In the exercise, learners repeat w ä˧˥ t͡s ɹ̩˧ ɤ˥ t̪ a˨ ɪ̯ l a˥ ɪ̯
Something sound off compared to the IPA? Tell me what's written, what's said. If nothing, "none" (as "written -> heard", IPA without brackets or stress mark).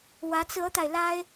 none